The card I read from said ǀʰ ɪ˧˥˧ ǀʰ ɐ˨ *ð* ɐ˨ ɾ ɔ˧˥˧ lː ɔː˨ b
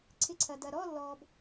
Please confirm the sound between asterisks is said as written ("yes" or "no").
no